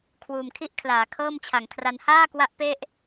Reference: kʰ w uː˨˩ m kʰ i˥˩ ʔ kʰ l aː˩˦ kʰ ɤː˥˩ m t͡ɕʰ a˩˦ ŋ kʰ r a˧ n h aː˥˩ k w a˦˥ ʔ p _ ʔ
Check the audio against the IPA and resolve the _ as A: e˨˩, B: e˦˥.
B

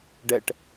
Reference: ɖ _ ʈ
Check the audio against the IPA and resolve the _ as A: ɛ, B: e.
A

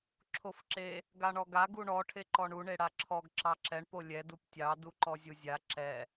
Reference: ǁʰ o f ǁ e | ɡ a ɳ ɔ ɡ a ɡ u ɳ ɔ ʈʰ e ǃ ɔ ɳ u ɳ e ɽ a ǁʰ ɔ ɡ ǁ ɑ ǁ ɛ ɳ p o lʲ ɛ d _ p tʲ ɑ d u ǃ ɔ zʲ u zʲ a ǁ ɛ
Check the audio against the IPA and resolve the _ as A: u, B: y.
A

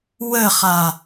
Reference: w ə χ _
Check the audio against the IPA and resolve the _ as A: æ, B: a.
B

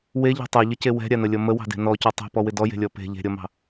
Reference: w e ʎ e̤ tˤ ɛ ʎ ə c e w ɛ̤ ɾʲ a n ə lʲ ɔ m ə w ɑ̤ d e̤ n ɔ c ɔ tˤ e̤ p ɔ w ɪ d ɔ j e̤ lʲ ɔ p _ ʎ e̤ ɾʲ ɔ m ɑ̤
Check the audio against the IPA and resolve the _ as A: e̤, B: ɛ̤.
A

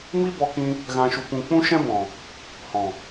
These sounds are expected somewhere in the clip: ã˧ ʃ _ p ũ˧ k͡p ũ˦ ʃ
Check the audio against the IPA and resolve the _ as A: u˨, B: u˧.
B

